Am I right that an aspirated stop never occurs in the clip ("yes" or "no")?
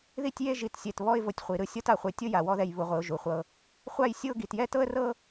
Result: yes